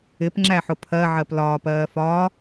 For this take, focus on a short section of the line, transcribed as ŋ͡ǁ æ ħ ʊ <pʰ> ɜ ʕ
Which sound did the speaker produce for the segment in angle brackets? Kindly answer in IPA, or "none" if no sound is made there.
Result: pʰ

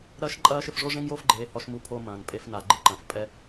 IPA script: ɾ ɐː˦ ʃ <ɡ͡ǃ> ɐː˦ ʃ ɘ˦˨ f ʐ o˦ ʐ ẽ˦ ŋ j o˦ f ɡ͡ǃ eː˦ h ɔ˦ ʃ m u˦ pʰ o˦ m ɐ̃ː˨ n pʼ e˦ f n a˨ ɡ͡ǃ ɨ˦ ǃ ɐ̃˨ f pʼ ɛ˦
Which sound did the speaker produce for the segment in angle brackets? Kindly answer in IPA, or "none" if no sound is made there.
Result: ǃʼ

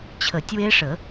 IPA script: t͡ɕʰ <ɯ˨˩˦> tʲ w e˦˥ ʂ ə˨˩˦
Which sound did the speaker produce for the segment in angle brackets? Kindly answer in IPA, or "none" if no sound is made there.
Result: ə˨˩˦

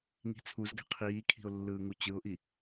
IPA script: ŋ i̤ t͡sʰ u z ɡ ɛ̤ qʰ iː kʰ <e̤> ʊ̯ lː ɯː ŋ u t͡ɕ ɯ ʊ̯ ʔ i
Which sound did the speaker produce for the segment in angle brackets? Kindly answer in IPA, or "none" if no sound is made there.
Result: i̤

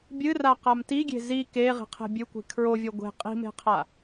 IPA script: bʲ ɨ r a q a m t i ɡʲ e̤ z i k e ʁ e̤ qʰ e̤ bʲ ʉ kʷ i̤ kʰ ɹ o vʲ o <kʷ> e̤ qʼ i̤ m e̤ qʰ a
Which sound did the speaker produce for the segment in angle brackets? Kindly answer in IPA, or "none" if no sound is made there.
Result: ɡʷ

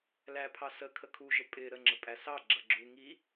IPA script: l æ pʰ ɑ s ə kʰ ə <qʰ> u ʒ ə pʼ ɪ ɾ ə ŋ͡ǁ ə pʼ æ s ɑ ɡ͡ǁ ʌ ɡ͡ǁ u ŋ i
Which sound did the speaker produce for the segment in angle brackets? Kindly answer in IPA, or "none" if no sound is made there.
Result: kʰ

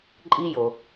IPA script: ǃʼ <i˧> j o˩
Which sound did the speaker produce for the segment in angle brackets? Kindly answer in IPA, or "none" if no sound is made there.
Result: i˧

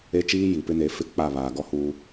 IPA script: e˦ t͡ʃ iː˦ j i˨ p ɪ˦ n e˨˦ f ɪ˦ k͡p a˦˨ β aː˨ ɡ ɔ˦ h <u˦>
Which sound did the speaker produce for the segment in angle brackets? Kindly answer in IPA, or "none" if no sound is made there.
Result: u˦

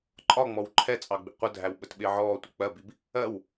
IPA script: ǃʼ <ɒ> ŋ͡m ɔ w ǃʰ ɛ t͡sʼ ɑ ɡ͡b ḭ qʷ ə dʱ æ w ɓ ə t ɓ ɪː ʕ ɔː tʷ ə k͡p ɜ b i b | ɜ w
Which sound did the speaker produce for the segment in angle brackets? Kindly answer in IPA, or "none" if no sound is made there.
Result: ɒ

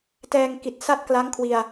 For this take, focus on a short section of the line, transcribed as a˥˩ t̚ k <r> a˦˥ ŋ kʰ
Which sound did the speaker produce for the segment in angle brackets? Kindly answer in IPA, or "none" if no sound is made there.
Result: l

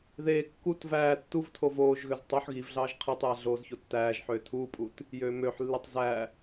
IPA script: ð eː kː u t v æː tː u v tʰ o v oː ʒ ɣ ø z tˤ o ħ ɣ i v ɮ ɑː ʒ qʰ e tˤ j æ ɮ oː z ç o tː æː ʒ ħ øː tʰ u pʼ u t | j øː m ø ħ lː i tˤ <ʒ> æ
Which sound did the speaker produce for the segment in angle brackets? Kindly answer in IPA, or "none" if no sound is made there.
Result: z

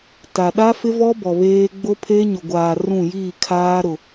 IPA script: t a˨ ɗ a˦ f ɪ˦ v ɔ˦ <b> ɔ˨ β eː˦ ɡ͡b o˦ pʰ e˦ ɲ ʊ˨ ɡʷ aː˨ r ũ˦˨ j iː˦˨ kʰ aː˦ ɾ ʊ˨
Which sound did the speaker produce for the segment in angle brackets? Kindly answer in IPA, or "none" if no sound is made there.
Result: b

